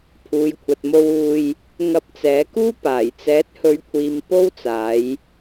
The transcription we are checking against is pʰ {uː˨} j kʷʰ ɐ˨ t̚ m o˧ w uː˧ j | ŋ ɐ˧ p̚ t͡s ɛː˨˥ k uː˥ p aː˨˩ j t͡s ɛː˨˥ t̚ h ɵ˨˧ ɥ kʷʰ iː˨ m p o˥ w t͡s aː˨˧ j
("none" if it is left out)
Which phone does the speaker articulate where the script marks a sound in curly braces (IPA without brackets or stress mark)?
uː˨